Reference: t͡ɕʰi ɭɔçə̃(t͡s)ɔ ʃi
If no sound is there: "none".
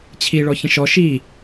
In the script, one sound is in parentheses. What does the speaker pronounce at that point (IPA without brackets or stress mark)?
ʃ